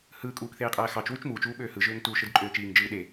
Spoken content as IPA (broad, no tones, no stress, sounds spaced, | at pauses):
h ɯː kʼ uː k θ eː qʼ æː x ɑ t͡ʃ w y t͡ʃ m uː t͡ʃ uː ɓ øː h ɯ ʒ øː ŋ t uː ʃ ɯ d ǃʼ øː t͡ʃ iː ŋ d͡ʒ ɯː ɗ e